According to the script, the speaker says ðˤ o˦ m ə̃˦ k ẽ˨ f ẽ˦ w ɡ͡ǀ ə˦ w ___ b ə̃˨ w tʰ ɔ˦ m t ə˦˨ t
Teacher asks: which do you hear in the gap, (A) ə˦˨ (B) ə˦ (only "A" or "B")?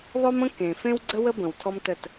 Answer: B